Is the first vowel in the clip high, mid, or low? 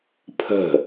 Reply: mid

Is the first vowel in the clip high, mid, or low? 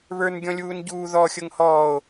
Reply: mid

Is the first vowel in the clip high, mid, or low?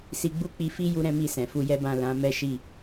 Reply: high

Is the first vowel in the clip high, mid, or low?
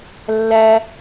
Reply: low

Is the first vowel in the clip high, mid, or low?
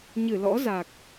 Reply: high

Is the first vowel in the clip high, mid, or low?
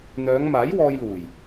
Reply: mid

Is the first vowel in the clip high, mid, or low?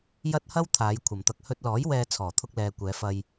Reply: low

